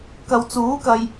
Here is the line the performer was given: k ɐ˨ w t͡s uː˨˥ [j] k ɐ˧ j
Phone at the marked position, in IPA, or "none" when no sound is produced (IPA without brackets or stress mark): none